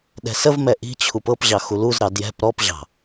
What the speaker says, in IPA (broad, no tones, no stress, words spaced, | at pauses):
ɗɛ̤səvmɛ ʔi̤t͡ɕʰup ɤpʑɑ xuluzɾɑ djɛ̤p ɾɔpʑɑ̤